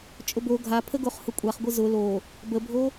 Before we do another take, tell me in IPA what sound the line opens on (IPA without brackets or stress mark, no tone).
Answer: t͡ʃʼ